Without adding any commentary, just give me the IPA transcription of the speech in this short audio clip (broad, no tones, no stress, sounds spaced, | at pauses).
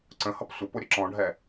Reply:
ǀ ə̃ h ʌ p sʷ ə p ʊ ɾʲ ə ǁ ɔ̃ ɖʱ ɛ